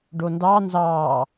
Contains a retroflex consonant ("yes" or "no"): yes